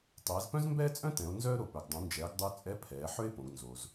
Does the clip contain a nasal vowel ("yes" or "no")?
yes